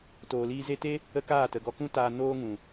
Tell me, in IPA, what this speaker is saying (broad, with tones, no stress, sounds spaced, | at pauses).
t oː˨ l iː˧ z e˧ t e˦ | ə˦ k aː˦˨ t ə˨ ɡ ɔ˧ k ũ˦ t aː˧ n oː˧ ŋ ũ˨